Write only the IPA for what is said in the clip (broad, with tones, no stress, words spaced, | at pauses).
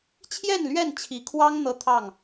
t͡ɕʰjɛ˥˨nlɥɛ˥˨nt͡ɕʰi˨˦kʰwɑ˦ŋ n̪ɤ˦t̪ʰɑ˥˨ŋ